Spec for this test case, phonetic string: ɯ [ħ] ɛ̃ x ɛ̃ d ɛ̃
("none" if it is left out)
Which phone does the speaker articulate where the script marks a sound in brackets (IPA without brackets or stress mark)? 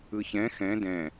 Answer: ç